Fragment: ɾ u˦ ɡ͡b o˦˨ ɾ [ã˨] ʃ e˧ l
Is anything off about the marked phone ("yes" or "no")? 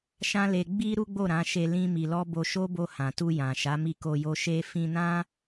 yes